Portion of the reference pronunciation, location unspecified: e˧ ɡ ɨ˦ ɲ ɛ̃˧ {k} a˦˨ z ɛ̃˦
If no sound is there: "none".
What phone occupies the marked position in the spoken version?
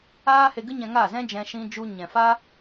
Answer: ŋ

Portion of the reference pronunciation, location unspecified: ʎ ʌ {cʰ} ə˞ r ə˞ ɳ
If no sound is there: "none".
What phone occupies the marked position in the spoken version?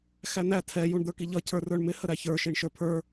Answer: cʰ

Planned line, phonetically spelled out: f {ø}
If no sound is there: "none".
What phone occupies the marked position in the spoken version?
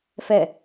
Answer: ɛ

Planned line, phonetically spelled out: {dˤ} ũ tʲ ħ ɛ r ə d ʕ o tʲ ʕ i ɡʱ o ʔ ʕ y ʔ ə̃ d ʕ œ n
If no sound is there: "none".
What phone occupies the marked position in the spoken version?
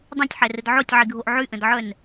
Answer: dˤ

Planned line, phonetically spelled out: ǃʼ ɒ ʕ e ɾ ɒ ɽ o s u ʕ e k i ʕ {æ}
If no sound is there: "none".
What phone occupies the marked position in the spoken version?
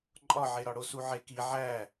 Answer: æ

